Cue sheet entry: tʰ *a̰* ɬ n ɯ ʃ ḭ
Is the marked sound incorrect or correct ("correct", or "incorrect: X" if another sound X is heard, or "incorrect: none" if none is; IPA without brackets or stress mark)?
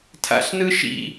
correct